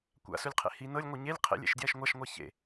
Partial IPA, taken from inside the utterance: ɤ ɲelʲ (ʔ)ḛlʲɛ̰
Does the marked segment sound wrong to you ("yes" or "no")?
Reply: yes